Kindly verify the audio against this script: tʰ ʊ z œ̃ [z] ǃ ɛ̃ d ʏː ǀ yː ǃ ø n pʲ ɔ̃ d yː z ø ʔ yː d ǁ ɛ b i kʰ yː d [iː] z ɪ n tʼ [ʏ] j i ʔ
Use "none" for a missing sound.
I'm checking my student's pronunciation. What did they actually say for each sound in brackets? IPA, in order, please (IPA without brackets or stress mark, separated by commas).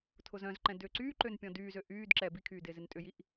z, ɪː, ʏ